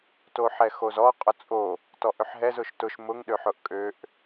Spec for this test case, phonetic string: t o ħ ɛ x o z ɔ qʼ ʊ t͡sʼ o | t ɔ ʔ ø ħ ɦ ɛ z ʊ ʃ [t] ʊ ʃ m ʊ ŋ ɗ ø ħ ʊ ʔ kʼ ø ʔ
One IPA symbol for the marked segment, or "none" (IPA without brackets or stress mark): t